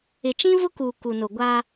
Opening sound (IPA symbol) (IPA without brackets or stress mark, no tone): ɪ